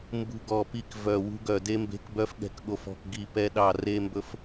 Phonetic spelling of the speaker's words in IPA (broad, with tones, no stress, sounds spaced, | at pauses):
m b ṳ˧ ɡ ɔ˧˩ p i˧ k v œ˧˩ w ṳ˧ ɡ œ˧˩ d e˧ m b e̤˧ k b œ˧ f ɠ ɛ̤˧ k ɠ o˧˩ f ɔ̤˧˩ k ɡ i˧˩ p ɛ˧ ɗ ɑ˧˩ r e˧ m b ɵ˧ f